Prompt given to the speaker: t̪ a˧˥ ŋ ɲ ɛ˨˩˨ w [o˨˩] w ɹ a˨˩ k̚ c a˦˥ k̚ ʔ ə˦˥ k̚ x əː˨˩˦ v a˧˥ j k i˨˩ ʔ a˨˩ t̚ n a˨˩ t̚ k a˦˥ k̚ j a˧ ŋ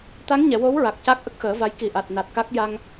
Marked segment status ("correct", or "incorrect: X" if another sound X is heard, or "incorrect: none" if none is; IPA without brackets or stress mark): incorrect: o˧˥